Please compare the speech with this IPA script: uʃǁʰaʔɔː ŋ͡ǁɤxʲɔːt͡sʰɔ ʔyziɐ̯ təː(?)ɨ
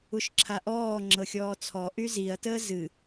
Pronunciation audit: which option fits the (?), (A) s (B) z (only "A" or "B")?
B